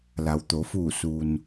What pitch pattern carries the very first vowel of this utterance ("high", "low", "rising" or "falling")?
low